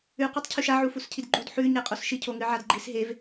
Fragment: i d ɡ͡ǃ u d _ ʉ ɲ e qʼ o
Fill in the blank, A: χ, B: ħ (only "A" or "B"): B